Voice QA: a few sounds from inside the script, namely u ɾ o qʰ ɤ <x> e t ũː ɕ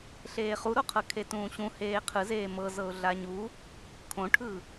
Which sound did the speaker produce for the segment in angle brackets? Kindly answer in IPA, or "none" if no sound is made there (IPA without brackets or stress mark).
kʰ